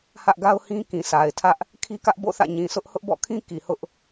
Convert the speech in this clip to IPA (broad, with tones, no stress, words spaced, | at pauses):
hä˦ʔɡa˦ʊ̯hĩ˦ kĩ˨sʰa˨ɪ̯tʰä˦ʔ | kʰi˦kä˦ʔbo̰˦˨θä̰˦˨ ɲĩ˨sʰʊ˦ʔ hʊ˦ʔbɔ̰˦˨kʰĩ˦ ki˨hʊ˦ʔ